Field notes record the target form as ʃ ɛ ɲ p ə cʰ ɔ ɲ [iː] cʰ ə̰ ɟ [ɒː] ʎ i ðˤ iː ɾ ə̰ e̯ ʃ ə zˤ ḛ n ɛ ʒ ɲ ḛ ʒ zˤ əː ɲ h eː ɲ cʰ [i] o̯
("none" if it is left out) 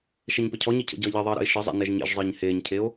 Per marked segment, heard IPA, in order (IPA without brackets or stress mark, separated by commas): i, ʌː, e